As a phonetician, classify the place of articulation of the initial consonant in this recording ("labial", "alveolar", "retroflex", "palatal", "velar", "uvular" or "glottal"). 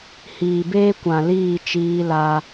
glottal